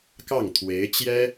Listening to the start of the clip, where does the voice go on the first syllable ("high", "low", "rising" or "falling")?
falling